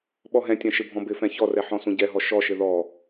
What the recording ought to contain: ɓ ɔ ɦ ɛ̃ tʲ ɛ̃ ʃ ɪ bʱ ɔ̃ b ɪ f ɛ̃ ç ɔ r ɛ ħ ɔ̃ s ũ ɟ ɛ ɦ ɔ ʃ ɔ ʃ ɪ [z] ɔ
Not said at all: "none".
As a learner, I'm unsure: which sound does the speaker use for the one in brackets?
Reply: ð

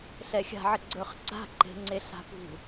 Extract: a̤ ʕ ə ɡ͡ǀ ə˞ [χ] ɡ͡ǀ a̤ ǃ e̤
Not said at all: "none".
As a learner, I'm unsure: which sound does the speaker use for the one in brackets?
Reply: χ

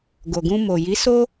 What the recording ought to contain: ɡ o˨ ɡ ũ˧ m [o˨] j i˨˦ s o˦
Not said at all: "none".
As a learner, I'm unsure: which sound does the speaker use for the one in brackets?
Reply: o˨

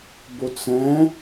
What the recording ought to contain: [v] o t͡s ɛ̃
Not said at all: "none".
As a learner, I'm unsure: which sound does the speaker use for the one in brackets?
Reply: b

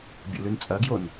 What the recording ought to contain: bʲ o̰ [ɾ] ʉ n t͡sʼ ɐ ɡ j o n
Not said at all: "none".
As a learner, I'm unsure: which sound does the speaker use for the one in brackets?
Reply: l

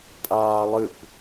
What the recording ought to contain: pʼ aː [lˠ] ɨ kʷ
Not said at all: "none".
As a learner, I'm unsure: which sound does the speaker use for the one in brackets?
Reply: lˠ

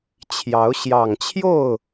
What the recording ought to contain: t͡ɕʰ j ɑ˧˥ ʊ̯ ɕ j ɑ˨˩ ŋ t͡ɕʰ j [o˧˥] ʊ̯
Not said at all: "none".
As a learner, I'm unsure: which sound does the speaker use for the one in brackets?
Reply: o˥˩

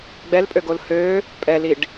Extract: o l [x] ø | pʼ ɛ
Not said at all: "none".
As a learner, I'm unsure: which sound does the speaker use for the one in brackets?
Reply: h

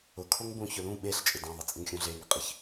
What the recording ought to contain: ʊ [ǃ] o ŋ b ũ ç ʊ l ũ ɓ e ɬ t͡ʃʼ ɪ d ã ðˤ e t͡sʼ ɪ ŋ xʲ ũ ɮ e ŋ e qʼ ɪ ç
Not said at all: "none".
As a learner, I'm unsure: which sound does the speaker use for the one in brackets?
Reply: kʰ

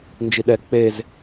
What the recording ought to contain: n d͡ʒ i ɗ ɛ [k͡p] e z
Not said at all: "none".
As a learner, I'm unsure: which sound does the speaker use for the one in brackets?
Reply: k͡p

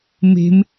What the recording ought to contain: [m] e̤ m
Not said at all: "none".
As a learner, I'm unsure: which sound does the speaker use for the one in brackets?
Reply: m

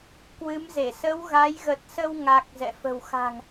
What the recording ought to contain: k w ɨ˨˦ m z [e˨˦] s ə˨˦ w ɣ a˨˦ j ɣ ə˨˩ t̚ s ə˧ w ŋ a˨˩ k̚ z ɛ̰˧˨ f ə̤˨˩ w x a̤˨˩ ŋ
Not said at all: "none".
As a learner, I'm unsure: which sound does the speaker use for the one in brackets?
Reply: e˧˩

